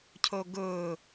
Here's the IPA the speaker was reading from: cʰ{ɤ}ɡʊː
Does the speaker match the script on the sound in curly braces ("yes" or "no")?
no